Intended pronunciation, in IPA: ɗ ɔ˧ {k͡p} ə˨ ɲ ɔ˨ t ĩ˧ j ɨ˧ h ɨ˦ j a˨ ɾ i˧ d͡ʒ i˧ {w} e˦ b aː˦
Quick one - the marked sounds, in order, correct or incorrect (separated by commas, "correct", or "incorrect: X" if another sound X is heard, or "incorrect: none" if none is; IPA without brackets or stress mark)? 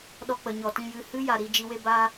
correct, correct